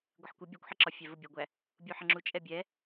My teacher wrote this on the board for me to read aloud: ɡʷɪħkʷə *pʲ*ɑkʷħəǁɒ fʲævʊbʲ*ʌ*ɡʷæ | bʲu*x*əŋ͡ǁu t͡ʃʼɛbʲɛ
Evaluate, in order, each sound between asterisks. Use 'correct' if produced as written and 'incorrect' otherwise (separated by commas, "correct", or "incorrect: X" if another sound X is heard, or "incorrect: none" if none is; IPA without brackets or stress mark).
incorrect: bʲ, incorrect: ɑ, incorrect: ħ